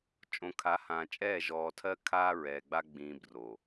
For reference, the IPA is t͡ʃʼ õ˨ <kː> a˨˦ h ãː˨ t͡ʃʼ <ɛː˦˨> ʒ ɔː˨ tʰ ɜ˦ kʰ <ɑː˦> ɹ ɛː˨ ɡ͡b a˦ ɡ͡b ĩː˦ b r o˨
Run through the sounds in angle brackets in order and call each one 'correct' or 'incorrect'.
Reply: incorrect: kʰ, correct, incorrect: aː˦

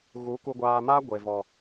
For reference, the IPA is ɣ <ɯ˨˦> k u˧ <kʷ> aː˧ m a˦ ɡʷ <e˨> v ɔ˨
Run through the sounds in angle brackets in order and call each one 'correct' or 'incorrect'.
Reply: incorrect: u˨˦, incorrect: ɡʷ, correct

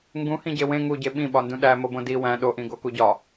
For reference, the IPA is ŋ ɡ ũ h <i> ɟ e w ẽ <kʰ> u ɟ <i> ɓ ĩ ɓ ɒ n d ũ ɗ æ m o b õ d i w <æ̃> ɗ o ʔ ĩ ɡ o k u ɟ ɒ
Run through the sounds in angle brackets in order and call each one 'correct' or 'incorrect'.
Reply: incorrect: ĩ, incorrect: ŋ, incorrect: e, correct

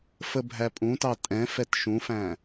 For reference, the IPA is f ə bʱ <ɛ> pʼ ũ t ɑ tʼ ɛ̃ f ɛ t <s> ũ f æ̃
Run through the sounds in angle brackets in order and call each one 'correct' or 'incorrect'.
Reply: incorrect: æ, incorrect: ʃ

